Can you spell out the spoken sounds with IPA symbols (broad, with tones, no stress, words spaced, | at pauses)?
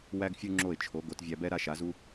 wæ˥ɡfʲu˥ŋ͡ǁo˥˩ɪ̯t͡ʃʰo˩˥ ɡo˩˥tvʲæ˧bɛ˥ ɾa˥ʃa˩˥zu˥